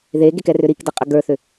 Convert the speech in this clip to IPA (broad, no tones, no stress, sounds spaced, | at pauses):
ð e ɡ e k ɛ r ʏ ɾ i k d ə qʼ ə ɡ ə˞ θ ʏ